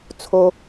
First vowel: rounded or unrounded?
rounded